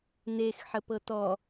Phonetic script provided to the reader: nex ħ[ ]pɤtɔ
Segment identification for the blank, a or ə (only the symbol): ə